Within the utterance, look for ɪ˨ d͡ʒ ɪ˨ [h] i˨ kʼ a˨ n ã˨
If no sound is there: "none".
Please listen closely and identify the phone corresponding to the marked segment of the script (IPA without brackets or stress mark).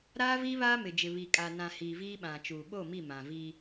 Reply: β